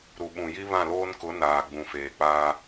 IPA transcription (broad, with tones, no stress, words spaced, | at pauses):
ɾu˨ɓũ˨ji˦ βã˦˨loː˦nkʊ˨˦ naː˨ɡ͡bũ˨feː˨k͡paː˦